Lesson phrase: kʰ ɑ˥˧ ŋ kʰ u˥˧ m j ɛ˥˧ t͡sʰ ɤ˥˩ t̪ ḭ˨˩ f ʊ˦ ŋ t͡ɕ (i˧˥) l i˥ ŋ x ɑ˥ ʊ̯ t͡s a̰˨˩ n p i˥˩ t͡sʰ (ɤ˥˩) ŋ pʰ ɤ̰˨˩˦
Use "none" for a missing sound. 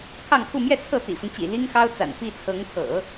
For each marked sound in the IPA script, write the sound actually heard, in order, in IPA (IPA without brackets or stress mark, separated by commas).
ḭ˨˩, ɤ˧˥